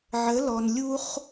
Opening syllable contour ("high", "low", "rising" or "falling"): rising